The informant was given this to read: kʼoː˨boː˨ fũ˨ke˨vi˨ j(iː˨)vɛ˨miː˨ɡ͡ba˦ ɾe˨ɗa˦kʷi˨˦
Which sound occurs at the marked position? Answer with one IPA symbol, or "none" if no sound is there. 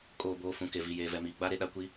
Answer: eː˨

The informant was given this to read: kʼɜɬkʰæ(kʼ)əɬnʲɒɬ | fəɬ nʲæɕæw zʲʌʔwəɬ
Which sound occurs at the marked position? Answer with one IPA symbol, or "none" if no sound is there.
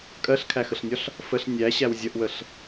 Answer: x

